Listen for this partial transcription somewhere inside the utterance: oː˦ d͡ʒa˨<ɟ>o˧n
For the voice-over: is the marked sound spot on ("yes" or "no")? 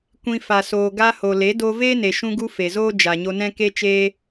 no